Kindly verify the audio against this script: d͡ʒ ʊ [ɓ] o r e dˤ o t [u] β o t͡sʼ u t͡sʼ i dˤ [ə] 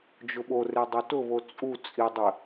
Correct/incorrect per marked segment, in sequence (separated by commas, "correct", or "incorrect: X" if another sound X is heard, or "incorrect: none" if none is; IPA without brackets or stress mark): correct, incorrect: ʊ, correct